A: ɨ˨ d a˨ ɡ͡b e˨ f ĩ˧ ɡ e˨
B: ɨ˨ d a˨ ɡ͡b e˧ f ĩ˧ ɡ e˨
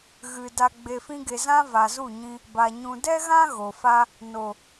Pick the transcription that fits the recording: A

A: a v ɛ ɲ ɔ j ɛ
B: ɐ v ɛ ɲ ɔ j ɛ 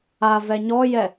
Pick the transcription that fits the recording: A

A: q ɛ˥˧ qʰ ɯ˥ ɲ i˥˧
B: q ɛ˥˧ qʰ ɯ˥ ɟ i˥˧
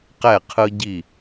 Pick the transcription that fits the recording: B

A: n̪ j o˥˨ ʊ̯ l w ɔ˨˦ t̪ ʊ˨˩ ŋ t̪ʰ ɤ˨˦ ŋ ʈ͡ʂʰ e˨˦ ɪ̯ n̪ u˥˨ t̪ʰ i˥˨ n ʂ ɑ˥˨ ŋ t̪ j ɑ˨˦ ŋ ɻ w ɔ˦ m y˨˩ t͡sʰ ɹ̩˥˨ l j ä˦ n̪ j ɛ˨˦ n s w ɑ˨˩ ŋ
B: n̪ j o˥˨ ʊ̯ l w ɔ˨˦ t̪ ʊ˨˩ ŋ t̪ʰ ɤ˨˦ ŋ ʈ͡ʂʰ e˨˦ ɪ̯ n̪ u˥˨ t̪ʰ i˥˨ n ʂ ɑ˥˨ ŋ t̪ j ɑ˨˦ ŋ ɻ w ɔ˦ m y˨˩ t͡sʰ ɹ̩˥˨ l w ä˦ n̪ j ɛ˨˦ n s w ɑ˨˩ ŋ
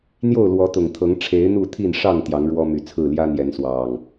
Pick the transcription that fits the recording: A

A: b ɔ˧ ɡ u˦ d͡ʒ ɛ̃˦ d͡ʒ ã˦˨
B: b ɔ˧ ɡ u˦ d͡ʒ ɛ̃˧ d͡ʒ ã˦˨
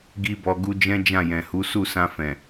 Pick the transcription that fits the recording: A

